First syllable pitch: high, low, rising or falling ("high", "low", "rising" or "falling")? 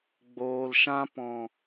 low